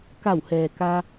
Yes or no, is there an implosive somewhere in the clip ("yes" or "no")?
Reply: no